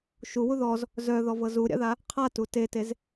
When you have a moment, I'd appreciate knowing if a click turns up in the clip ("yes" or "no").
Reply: no